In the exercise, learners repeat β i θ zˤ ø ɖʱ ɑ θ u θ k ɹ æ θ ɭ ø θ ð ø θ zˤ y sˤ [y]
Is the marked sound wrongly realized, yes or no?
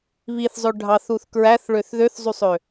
yes